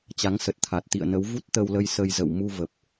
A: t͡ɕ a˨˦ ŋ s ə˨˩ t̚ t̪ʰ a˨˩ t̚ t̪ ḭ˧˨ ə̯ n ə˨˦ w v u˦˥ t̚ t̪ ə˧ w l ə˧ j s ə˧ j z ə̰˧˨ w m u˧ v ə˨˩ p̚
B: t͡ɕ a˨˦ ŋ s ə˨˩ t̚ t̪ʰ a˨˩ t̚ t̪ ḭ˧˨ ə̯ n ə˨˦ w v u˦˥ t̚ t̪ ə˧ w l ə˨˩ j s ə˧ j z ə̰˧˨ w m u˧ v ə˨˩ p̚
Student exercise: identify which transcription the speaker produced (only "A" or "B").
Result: A